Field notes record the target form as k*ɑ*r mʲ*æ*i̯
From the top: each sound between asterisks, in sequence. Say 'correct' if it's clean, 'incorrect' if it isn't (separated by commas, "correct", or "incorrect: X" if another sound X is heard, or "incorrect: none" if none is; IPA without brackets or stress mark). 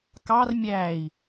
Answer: correct, correct